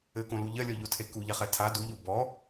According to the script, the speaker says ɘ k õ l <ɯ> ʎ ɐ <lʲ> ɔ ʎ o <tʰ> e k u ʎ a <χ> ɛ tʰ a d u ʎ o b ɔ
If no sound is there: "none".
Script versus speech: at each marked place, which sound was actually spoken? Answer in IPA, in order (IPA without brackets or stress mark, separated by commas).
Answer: u, lʲ, tʰ, χ